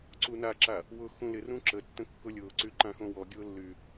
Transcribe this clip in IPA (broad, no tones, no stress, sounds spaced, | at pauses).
ǀ u n a ǁ a | w ʊ x ũ l ɪ r ũ ǁ ə tː ə̃ kː ʊ lʲ ʊː ǀ y ǃ ã x õ w ɔ ɡʲ ʊː lː y